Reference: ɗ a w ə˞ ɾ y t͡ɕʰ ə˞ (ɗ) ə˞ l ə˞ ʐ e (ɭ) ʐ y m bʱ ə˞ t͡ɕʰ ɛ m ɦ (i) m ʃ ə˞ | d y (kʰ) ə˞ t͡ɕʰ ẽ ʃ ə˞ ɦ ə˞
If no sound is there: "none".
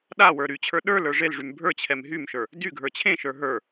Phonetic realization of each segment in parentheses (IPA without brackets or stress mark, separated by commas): ɗ, l, y, ɡʱ